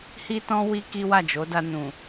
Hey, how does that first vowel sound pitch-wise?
high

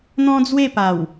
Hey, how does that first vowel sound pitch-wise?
high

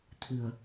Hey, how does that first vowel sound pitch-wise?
low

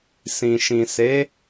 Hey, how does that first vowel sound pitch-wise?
low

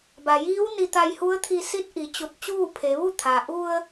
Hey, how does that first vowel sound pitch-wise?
low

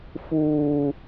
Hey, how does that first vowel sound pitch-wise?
high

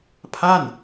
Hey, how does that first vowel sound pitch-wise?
falling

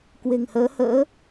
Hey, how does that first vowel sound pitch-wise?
low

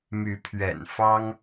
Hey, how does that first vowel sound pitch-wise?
rising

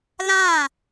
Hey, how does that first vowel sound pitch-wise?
falling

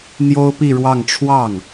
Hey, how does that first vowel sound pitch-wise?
high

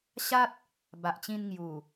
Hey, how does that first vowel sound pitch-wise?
high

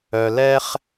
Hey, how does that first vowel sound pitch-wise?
low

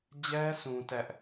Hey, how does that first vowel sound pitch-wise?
high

